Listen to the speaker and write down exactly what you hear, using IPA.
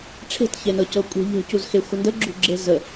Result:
ʈ͡ʂʰ e̤ t ç e n ɤ c ɤ kʷʼ e̤ ʎ e̤ c u z x e xʷ ə n d ə ɡ͡ǁ ṳ ɡ͡ǁ e z ə

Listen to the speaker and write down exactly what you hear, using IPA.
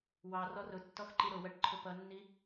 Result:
w ɑ r ɔ r ʊ tː ɔ x ǃ i ɾ ʊ w ɜ ʈ ǃʰ ʊ p ʌ nː i

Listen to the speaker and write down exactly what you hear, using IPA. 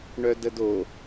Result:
ɳ œ d ə d o

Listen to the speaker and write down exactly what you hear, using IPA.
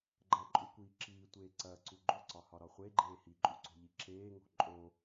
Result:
ɡ͡ǃ ɐ ǃʼ u kʷ iː ǁ iː tʷ eː ǀ ɐː ǀ u ɡ͡ǃ o ǀ ɒ h ɒ ɾ ɒ χʷ e ɡ͡ǃ eː h i ǃʼ u ǀ o̤ ʎ i ǁ eː ŋ o̤ ǃʼ o

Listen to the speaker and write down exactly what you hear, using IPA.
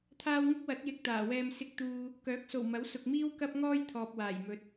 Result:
t̪ʰ aː˧ w ŋ ɪ˥ k̚ w ɐ˨˥ t̚ j ɪ˨ k̚ t̪ aː˨˩ w ɛː˧ m s ɪ˨ k̚ t̪ uː˨ | k œː˨˥ k̚ s o˨˩ w m ɐ˨˥ w s ʊ˨ k̚ m iː˥ w k ɐ˥ p̚ ŋ ɔː˥ j t̪ʰ ɔː˨ p̚ w aː˨˩ j m ɵ˨ t̚

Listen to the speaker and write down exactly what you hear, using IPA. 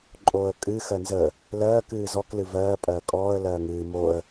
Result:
ǃʼ oː ə̯ kʼ ɨ x ɜ n z ə | l ɜː k ɨː z ɔ k l ɨ v ɜː pʼ ɜː kʼ ɔː ə̯ l ɜː ŋ ɨː m o ə̯

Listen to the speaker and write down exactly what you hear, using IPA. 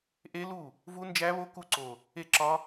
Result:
ʔ e˦˥ l u˥˩ | v u˦˥ n d͡ʒ æ˦˥ β o˦˥ k u˦˥ ǀ o˨˩ | e˥˩ ǁ ɒ˦˥

